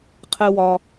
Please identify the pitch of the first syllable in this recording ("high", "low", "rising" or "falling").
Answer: low